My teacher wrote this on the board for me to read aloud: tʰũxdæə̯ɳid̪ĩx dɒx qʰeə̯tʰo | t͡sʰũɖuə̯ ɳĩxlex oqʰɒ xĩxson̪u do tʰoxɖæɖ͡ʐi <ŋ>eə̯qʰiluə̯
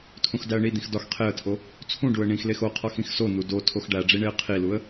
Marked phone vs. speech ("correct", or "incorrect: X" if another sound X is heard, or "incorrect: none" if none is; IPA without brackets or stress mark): incorrect: ɳ